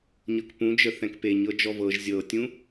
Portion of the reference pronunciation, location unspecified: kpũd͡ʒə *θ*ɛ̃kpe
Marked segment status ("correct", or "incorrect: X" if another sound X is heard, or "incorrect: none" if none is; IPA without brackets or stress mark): correct